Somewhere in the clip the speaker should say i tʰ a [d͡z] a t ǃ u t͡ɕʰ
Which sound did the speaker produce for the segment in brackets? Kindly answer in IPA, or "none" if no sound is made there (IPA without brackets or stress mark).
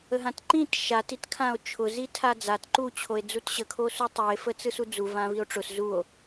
d͡z